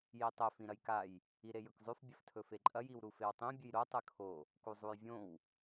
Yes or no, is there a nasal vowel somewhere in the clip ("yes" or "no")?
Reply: yes